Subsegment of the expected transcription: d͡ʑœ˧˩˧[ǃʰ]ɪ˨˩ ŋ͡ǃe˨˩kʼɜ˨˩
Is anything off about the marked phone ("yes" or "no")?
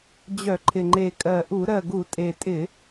no